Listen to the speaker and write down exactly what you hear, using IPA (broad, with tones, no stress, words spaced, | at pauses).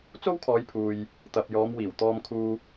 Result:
t͡so˥wkʰɔː˨˧jpʰuː˨j | t̪ɐ˨p̚jɔː˨˧m wiː˨˩w t̪ɔː˧mkʰuː˧